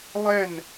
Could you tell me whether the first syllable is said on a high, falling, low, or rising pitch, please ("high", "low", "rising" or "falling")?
falling